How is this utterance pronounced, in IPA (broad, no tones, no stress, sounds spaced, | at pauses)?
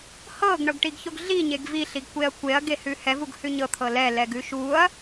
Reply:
h ɤ ɡ ɳ ɤ ɡ ʈ i ɡ ç o ɡ ɮ i ɲ e ɡ v i ɬ i ɡ kʷ e ɐ̯ kʷ e ɐ̯ ɡ e h ʉ h ɛ v u ɡ h ʉ ɲ ɤ t̪ʰ ɤ l ɛ l ɛ ɡ ʉ ʃ u ɐ̯